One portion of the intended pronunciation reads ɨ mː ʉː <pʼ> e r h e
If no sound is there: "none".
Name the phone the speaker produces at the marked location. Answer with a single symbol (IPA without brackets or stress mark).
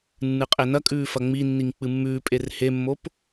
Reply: pʼ